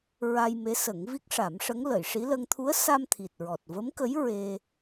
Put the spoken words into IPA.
ɹ a˧ j m e˧˥ s ə˨˩˦ ŋ v i˦˥ k̚ ʂ a˨˩˦ m ʂ ə˧˥ ŋ l ə˨˩˨ j ʂ i˧˥ l ə˧ ŋ t̪ʰ u˧˥ ə̯ s a˧ m t̪ʰ i˨˩ t̚ ɹ ɔ˨˩ t̚ v ə˧˥ m k ə˧˥ j ɹ e˧

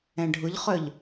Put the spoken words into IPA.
ɛ̃ ɖʱ ʊ ʎ χ œ ʎ

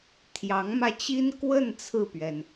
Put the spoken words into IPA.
t̪ʰ j ɑ˧˥ ŋ m ä˧ t͡ɕ i˥ n k w ə˥˧ n t͡sʰ ɹ̩˥˩ p ɥ ɛ˩ n

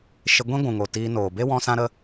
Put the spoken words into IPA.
ʃ e˧ ɡʷ ĩ˦ ɡʷ ũ˨ ŋ o˨ t iː˧ n oː˨ b e˦ w ɔ̃˧ s ã˦ ɾ ə˦

